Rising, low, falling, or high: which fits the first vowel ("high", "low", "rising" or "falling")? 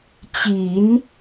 low